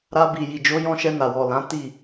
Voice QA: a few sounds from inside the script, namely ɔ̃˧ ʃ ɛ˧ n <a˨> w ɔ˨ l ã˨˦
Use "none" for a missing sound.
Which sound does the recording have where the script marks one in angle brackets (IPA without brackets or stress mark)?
a˨